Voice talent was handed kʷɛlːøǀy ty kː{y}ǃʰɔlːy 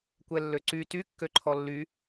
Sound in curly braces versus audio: incorrect: ø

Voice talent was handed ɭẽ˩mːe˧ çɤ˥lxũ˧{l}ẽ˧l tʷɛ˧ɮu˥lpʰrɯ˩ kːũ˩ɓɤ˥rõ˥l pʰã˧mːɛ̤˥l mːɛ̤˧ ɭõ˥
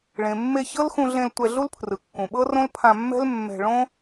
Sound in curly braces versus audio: incorrect: ɮ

